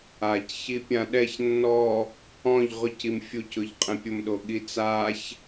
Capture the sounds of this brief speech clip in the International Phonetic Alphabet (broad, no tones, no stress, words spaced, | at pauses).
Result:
ac çipʲãɗɛç nːɔ | ɔ̃ʎ ʁʊcim fʲucʊʎ qʼɛ̃pʲʊmɗo ɠit͡saç